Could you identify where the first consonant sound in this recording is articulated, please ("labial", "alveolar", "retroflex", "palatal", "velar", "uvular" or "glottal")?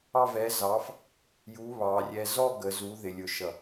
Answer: labial